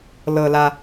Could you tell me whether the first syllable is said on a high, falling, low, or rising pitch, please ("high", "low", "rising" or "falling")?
low